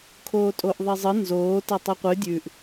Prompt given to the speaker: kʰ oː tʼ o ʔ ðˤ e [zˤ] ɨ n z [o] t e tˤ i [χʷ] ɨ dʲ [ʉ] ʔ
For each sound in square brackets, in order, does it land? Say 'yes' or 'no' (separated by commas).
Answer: yes, no, no, yes